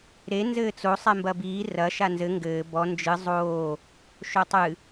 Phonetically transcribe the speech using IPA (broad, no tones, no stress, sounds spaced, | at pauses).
ɾ e n z ɘː t͡s o sˤ ɛ m b ɐ b iː r ɐ ʃ a n z ɘ ŋ ɡ ɘː b ɔ n d͡ʒ ɨ zˤ oː | ʃ o tˤ ɨ